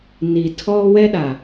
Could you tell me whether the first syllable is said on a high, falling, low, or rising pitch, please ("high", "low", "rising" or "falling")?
low